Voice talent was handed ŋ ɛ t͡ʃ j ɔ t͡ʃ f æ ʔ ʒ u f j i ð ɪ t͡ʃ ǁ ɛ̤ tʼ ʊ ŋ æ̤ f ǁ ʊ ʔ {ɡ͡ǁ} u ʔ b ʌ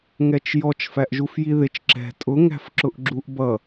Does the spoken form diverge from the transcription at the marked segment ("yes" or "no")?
no